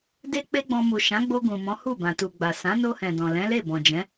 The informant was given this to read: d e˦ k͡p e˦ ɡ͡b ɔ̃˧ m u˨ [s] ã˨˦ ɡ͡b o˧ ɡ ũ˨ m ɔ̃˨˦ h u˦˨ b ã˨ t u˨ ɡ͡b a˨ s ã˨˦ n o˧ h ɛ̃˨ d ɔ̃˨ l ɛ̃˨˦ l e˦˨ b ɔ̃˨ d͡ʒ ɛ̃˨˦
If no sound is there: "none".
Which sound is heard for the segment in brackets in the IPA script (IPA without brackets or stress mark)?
ʃ